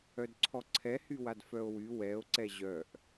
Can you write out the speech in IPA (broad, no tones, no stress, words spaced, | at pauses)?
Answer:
œdǀʰɔǀʰɛ hywadfœo̯wy wɛo̯ ǀɛʑœʔ